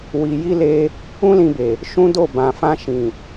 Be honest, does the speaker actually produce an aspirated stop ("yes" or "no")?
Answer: no